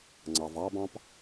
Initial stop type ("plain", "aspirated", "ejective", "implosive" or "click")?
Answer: click